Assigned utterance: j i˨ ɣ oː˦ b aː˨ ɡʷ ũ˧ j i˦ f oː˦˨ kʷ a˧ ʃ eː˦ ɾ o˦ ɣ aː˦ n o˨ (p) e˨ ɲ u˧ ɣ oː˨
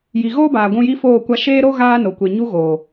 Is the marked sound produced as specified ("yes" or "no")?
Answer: no